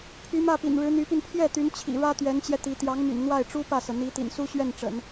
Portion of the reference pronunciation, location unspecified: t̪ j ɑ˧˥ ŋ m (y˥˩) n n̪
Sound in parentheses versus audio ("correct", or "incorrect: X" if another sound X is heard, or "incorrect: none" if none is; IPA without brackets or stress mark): incorrect: y̰˨˩